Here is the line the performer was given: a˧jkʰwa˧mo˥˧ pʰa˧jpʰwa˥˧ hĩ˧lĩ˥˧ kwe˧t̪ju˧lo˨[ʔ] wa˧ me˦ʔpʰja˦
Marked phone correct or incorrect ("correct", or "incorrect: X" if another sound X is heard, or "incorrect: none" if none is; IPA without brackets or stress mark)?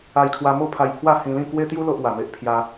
correct